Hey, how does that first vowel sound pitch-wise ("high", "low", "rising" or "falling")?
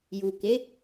low